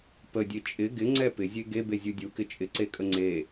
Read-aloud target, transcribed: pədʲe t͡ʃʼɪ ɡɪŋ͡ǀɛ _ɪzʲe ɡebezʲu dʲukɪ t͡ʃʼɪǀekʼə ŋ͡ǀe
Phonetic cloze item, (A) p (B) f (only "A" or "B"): A